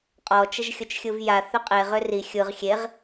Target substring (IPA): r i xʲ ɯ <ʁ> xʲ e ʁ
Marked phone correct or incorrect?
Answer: correct